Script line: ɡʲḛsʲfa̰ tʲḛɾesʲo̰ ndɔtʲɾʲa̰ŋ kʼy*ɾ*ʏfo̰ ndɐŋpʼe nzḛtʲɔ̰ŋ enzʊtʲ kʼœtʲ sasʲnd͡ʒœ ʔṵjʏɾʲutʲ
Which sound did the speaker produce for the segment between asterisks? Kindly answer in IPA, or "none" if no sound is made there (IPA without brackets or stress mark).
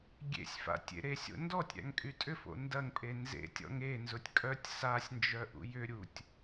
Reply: tʼ